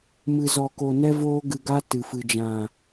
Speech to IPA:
m ɨ˧ z ɔ˧ k o˧ n ɛ˦ v oː˦ ɡ ɨ˧ ɡ a˦ t ɨ˨ f ɨ˨ d͡ʒ ã˨

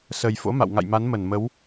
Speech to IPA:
s ə˨˩ j f o̰˧˥ m a̰˧˨ w ŋ a̰˧˨ j m a˨˦ n m ə˧˩ n m ə˨˦ w

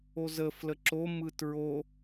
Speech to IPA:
o z ə f l ə ǁ o m ɯ t ɹ o

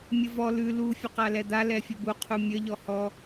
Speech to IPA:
mʲ ə v ɔ l ʉ l u fʲ ə q a l ɛ d̪ a l ɛ fʲ ə b u qʰ u mʲ ə ʎ ɔ h ɔ

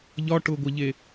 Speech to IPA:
ʎ ɒ ʈ ʊ ɡʷ ɐ ʎ e

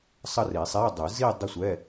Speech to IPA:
sˤ ʌ˥˧ r i˨˩˦ sˤ e˧˥˧ dˤ ɯ˨˩˦ z i˥˧ dˤ ʌ˥˧ sʷ ɛ˧˥˧

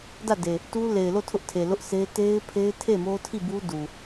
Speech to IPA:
d ä˦˨ d e˨ | t u˦ l e˨ ɪ̯ l o˦˨ tʰ ʊ˦ ʔ tʰ e˨ l ʊ˦ ʔ s e˦ t e˦ ɪ̯ pʰ e˦ ɪ̯ tʰ e˦˨ m o˦ tʰ i˦˨ b u˦ d u˨

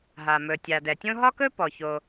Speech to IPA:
ɦ a˩ m ɵ˩ tʲ a˩ d ɛ˩ tʲ õ˥ ɦ ɒ˥ k ɵ˥ p ɔ˩ ç o˩

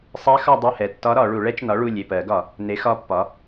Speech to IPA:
sˤ ɛ˧˥ x ɒ˦˨ dˤ u˦˨ h ɛ˩˧˩ tː ɒ˧˥ ɾ ɒ˧˩˧ ɭ u˧˩˧ ɭ ɛ˧˥ t͡ʃ n ɒ˩˥ ɭ u˩˧˩ lʲ e˩˧˩ p ɜ˧˩˧ ɡ ɒ˧˩˧ | n e˩˥ x ɒ˧˥ pː ɒ˩˥

